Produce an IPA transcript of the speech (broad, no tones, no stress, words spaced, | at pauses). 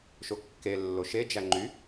ʃokːe lːoʃe d͡ʒæŋ͡ǃy